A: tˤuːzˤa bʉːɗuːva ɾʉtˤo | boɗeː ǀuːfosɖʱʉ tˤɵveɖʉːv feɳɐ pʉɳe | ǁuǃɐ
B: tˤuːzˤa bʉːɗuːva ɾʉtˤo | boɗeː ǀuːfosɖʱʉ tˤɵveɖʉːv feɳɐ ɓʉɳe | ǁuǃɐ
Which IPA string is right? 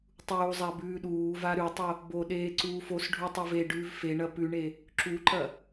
A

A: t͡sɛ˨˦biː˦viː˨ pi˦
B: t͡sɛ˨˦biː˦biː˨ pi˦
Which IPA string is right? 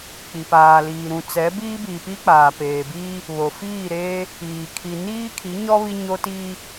B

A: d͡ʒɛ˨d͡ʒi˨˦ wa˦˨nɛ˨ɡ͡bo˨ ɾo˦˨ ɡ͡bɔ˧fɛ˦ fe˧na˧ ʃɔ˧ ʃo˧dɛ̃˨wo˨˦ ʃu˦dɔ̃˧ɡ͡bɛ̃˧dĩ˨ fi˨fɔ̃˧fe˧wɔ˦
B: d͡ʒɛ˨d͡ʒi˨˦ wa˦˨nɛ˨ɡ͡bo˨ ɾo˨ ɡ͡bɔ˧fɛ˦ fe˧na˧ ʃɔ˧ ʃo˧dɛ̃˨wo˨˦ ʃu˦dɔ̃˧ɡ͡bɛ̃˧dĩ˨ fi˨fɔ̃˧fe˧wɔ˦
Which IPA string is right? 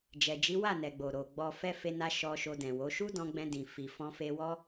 B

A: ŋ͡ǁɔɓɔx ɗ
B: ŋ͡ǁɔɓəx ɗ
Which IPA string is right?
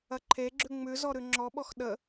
A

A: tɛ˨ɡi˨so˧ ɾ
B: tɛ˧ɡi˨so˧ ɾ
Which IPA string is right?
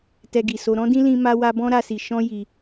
B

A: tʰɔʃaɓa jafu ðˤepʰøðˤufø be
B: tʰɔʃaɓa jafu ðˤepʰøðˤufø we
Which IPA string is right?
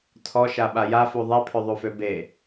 A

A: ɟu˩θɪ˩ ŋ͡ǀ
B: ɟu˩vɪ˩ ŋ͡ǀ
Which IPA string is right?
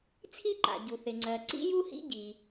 A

